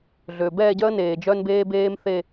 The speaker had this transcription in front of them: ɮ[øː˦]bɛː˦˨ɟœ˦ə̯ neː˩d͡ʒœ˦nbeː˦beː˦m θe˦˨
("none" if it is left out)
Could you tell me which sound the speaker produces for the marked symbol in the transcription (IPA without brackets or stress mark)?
øː˩